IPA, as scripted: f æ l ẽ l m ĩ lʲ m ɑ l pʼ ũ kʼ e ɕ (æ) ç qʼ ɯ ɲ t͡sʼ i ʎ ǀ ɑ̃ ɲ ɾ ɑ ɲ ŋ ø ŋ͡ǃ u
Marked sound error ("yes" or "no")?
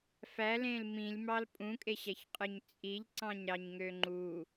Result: no